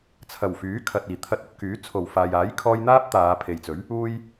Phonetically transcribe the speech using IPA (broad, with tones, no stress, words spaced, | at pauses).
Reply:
t͡sʰɐ˨˩wfyː˨˥kʰɐ˨t̚ iː˨˩t̪ʰɐ˧t̚ɵ˧t̚ kyː˨˥ t͡sʰo˨˩wfaː˨jaː˨˥j kʰɔː˧jn̪aː˥p̚ t̪aː˨˧pʰe˨jt͡sɵ˨˥ɥ | uː˧j